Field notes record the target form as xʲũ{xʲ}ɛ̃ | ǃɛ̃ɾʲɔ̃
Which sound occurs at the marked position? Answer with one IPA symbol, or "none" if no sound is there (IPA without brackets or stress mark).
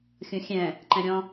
xʲ